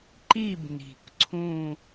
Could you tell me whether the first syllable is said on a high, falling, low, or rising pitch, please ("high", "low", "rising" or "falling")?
falling